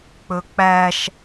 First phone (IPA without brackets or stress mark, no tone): k͡p